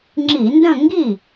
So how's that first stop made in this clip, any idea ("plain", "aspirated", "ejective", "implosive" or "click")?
click